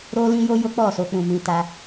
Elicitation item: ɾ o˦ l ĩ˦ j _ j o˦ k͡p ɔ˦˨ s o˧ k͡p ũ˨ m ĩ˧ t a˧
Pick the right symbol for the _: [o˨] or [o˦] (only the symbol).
o˦